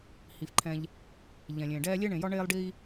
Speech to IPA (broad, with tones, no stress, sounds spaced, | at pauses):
h i˩ f ǃʰ ɛ̃˨ ʎ | ʎ ɛ̃˩ lʲ ẽː˩ ɖ ɛː˦ lʲ e˥ ɳ ẽ˨ j ɒ˥ ɳ eː˥ lˠ ɖ iː˥